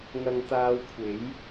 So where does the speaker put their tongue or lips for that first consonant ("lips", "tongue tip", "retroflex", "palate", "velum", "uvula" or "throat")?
velum